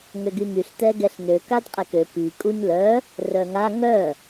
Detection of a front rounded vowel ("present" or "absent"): present